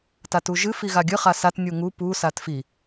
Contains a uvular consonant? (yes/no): yes